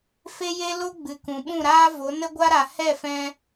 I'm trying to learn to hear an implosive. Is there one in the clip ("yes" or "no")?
yes